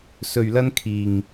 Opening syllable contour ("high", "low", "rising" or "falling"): low